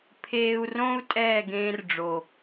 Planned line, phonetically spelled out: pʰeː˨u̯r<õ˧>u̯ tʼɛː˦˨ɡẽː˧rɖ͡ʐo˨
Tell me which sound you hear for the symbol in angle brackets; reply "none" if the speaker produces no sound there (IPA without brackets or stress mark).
õ˧